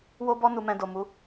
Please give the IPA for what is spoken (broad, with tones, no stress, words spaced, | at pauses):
wo˧bɔ˧ nu˨mɛ̃˨ do˨mu˨˦